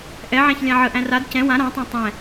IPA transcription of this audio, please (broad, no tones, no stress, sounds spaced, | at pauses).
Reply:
ʔ ɛ ʕ æ̃ ç lʲ ã ʕ ə ʔ æ̃ r a d c ɛ̃ w ã ɾ ã tˤ ɛ̃ tˤ ɛ̃